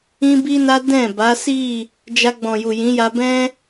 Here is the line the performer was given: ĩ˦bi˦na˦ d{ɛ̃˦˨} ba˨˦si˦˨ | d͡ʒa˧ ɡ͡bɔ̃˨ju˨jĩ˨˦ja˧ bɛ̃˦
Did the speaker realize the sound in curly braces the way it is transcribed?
yes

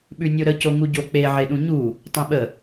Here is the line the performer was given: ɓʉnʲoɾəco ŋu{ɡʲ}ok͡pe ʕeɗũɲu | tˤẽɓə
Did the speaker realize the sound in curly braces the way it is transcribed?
no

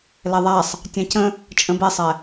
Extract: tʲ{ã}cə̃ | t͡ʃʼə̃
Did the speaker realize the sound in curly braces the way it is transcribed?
yes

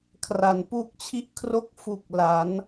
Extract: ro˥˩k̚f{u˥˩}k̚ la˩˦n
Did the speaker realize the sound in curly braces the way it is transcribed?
no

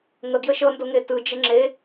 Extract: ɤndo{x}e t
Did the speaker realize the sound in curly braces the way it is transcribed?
no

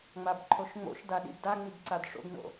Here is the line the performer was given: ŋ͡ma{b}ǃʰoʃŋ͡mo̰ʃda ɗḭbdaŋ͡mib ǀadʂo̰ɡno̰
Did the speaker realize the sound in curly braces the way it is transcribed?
yes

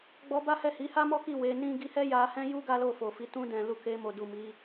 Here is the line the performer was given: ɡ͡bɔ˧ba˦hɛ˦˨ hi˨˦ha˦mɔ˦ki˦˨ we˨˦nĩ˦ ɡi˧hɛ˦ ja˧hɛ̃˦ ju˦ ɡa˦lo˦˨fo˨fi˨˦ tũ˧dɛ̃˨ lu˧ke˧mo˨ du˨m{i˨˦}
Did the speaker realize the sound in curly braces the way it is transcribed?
yes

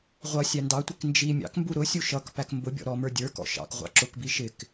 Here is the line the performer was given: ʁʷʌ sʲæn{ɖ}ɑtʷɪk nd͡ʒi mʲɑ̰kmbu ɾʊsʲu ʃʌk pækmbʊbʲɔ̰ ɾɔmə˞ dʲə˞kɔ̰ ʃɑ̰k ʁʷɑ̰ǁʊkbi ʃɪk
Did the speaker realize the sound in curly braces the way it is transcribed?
no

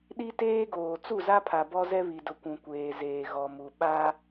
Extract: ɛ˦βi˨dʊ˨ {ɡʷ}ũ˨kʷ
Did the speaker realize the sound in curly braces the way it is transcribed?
no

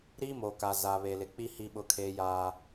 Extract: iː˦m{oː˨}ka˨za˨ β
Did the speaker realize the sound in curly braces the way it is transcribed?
yes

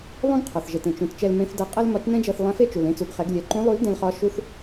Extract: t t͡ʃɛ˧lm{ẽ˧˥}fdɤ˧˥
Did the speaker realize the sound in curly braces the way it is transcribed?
yes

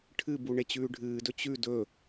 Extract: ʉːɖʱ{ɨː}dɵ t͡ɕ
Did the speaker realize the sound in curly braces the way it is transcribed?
yes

